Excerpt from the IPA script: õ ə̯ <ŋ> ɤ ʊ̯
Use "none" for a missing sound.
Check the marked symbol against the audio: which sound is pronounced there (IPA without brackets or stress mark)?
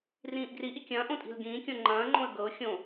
ɡ